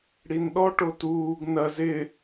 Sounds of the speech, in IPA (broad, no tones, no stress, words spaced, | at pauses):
ɽinɗɔ ʈotuːɡ nɐ zɪ